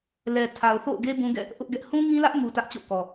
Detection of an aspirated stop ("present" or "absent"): present